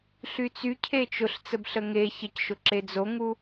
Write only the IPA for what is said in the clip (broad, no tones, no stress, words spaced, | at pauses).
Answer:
ɬyt͡sy cʰet͡ʃʊɬ t͡səbɬəŋe çəcʃʊ ǁed͡zoŋu